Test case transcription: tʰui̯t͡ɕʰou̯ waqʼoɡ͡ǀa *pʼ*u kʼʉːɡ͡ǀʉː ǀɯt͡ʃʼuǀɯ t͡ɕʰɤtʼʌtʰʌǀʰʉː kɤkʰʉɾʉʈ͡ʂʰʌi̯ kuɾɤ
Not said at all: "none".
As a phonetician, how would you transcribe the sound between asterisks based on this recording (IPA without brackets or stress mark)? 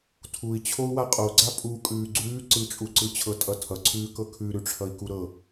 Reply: pʼ